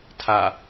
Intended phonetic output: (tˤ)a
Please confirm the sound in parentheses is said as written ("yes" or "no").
no